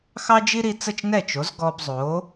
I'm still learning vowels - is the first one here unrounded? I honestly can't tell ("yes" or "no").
yes